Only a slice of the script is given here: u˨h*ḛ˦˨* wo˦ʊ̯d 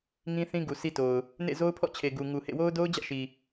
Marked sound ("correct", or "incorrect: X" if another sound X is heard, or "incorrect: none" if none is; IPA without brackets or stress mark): correct